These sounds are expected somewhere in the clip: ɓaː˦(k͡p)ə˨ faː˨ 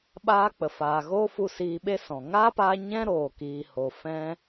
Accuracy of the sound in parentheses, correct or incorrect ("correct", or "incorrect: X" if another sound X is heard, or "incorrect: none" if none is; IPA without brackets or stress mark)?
correct